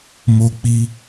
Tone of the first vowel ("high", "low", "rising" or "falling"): high